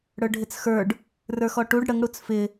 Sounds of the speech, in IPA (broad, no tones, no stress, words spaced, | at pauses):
ɽə˞ɖʱɪt͡sxə˞ɖ | rə˞xɔʈuɖ ɽəŋ ɽut͡sfɪ